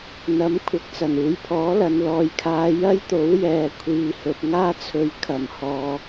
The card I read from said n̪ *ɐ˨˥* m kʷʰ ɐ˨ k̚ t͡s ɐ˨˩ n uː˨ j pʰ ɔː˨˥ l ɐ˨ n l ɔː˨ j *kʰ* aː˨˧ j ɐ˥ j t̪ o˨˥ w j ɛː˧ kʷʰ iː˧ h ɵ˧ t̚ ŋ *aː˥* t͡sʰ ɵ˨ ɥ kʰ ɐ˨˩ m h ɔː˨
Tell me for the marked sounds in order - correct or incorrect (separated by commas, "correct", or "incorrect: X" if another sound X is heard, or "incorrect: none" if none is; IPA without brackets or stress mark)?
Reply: correct, correct, correct